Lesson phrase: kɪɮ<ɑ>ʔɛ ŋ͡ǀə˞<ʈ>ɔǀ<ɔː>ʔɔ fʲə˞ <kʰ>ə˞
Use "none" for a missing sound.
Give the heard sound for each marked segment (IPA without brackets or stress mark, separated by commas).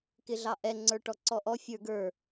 ɑ, ʈ, ɔ, ɡ